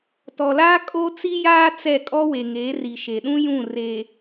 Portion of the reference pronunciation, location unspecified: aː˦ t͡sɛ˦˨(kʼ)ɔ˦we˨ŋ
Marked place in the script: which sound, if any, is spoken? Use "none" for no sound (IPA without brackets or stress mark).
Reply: kʼ